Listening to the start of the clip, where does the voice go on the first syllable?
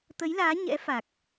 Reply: rising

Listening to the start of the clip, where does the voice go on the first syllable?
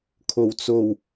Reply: low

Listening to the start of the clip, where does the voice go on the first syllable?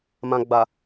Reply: low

